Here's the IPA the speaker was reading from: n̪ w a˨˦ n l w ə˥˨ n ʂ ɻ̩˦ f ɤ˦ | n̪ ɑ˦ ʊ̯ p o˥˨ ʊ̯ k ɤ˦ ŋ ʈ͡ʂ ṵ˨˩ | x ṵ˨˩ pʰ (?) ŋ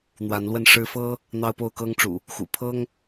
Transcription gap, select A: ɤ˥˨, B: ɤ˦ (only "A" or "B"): B